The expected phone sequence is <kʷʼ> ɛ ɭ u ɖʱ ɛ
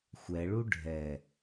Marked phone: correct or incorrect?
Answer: incorrect: xʷ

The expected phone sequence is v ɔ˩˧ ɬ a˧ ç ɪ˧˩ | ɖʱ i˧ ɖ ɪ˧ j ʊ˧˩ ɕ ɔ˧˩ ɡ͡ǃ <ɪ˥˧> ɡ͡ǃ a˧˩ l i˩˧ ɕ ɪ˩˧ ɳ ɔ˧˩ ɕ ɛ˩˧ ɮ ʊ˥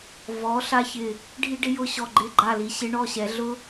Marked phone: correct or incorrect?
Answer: incorrect: ɪ˧˩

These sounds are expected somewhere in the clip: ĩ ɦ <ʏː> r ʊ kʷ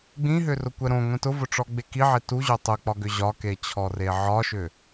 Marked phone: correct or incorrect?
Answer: incorrect: ʏ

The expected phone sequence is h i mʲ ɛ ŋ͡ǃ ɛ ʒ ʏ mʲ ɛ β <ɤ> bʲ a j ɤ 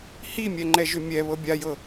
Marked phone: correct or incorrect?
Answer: correct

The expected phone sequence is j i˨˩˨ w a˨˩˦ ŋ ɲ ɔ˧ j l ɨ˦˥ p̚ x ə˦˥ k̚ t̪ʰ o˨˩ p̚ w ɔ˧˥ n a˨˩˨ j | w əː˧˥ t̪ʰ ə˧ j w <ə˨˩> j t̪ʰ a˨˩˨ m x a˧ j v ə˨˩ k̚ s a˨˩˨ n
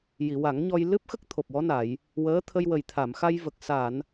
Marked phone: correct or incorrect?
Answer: correct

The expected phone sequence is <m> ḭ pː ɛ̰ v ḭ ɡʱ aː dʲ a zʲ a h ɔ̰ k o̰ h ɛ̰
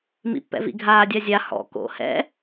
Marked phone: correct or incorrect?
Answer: correct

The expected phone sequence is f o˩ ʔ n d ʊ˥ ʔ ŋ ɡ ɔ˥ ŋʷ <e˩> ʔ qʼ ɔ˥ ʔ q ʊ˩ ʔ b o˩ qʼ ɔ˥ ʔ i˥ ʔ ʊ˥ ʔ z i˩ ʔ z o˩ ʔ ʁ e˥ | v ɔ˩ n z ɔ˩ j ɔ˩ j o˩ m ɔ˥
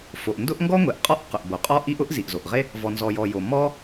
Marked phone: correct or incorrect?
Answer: correct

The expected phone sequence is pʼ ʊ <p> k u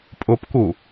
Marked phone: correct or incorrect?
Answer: correct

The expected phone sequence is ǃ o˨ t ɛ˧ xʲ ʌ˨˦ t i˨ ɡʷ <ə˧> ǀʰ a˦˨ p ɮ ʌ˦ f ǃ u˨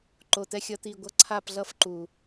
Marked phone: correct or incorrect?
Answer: incorrect: ʌ˧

